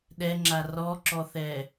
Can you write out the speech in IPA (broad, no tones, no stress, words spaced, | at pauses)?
ɗɛŋ͡ǁa rɔǁɔθɛ